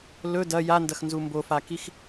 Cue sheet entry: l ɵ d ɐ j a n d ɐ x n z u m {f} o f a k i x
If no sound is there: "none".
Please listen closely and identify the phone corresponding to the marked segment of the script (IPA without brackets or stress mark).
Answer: b